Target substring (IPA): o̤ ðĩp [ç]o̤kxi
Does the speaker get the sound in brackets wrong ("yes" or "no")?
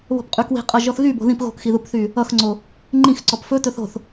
yes